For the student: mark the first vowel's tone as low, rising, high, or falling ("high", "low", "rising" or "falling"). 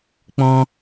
high